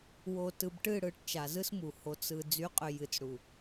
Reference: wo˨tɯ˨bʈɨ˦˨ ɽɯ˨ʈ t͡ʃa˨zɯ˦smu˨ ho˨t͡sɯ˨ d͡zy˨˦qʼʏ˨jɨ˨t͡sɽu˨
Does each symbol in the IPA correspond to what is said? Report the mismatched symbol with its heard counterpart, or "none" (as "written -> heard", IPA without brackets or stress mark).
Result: none